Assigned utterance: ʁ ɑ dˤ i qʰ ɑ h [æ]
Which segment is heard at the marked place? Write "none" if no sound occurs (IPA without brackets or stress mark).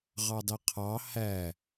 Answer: æ